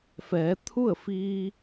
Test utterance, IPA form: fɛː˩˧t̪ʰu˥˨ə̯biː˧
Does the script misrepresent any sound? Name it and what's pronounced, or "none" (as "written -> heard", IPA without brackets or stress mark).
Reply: b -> f